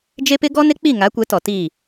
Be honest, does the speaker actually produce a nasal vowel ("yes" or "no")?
no